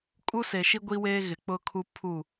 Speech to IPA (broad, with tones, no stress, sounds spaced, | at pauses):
kʼ u˦ s e˨ ʃ i˦ ɡʷ i˦ w eː˦ ɣ ɪ˨ k͡p ʊ˦ kʰ u˦ pʰ u˦˨